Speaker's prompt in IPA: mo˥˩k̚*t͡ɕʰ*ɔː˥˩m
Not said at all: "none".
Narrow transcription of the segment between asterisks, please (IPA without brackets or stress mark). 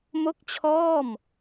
t͡ɕʰ